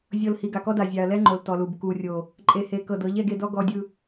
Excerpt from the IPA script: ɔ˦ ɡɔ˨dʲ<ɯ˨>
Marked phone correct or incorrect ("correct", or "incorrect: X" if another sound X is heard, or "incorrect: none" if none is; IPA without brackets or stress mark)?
correct